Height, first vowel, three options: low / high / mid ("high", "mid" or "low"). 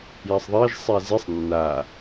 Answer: low